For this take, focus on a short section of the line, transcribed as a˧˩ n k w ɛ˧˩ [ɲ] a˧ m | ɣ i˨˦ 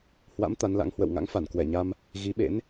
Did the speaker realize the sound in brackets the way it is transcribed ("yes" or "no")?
yes